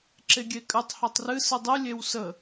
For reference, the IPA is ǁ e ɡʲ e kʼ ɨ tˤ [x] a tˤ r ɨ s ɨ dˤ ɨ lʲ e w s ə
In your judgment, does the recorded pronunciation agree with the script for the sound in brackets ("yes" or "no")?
no